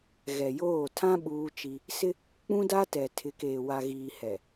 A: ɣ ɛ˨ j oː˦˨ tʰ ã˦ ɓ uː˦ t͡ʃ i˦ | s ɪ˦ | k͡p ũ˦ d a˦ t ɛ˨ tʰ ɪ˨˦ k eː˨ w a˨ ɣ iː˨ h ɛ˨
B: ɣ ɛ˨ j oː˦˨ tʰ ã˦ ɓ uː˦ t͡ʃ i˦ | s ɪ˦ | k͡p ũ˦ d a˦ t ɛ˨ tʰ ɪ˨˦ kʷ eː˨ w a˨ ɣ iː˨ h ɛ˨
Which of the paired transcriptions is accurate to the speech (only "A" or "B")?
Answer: A